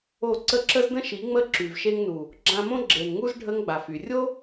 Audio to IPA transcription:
o˦˨ǀə˦ ǁə˦zdə̃˦ʃi˨˦ŋ͡mə˦˨ ǁy˨vʃe˧ŋnu˨ | ɡ͡ǁã˧mõ˦ ɡ͡ǁe˨n ŋu˦z ɖʱə˦ŋɡ͡ba˨fy˨ rʲo˦

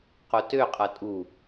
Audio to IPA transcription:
qotøqʼʌ tʼu

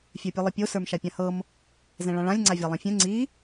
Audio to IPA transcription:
fʲə˞pʲɤlˠəpʲo sə˞mʃapʲãhɤm | zɛ̃ɭãɭãlʲ ŋ͡ǀavʲalˠɛ̃fʲɛ̃ ŋ͡ǀi

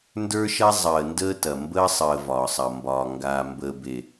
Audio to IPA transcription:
ndə˞˦ʃɐ˦ zˤəː˨ ndəː˦tɐ˨ mbəː˦ sˤəː˨ vɒː˨sˤɐ˨mbɒː˨ ŋɡaː˨mbəː˨ be˨

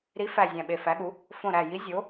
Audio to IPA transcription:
ɾi˨˥fæ˧˩ zʲæ̃˧˩ɓe˧˩fæ˨˥ɠu˨˥ | fõ˧˩ɾæ˧˩ji˨˥ zʲo˨˥

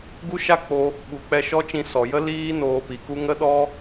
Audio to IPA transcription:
ɡu˦ʃa˦k͡po˧ | ɓu˨k͡pɛ˧ ʃɔ˦t͡ʃĩ˧ sɔ˨jə˦liː˦ noː˧pi˨ ku˦ ŋə˦ɗɔ˦

